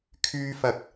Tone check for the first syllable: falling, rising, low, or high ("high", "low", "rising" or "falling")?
high